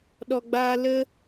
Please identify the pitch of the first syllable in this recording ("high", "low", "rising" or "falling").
low